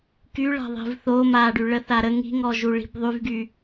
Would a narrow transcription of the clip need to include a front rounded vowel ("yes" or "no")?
yes